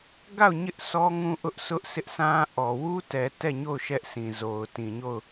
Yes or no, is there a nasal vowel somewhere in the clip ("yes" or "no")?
yes